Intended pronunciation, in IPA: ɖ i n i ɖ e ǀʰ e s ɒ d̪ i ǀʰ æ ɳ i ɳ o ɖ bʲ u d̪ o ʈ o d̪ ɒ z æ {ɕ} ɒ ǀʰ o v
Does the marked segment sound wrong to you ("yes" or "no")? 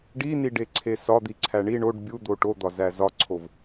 yes